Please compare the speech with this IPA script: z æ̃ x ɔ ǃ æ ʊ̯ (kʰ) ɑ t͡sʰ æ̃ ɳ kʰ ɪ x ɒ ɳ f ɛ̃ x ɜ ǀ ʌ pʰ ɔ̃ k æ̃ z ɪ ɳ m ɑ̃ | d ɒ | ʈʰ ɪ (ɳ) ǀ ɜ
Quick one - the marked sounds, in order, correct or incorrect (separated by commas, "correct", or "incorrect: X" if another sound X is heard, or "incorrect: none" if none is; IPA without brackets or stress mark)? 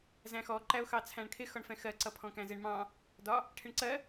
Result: incorrect: x, correct